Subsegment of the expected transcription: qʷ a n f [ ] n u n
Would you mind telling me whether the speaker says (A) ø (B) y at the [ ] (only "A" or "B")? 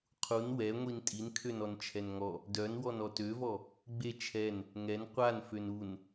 A